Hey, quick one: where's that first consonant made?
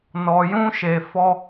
tongue tip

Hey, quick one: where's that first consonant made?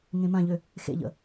velum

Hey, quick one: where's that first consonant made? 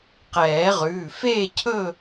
uvula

